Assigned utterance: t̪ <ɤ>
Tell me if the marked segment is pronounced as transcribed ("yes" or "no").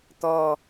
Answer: no